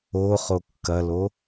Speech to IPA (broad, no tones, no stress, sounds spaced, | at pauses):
o χ o kː ɐ l o